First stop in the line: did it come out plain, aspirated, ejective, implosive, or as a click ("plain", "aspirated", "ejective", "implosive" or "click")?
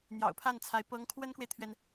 aspirated